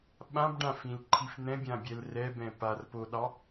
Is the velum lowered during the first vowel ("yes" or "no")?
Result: yes